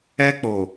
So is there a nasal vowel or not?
no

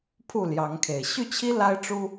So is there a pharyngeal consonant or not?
no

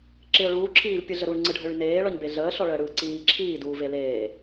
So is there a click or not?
yes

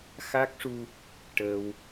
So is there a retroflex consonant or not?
yes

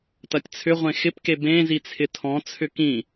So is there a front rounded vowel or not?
yes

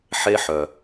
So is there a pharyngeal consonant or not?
yes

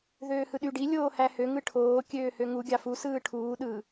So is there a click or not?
no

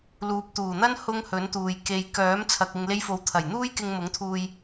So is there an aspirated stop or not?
yes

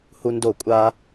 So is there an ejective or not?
yes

